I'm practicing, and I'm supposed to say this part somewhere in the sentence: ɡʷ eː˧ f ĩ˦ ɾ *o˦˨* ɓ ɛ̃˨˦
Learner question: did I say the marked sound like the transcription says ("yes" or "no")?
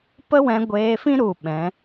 no